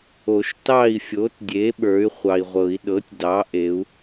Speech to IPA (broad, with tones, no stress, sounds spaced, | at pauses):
o˨˩˦ ʃ t ɑ˥˨ i̯ fʲ o˩˥ t dʲ e˩˥ ɓ ə˞˩˥ y̯ χʷ ɑ˨ i̯ ʁʷ ɤ˨˩˦ i̯ ɗ ɤ˩˥ tʲ d ɑ˩˥ ʔ e˩˥ u̯